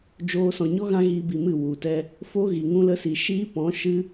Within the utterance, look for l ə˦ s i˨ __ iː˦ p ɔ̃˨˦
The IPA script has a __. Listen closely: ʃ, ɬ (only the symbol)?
ʃ